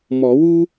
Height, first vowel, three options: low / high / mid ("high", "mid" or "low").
mid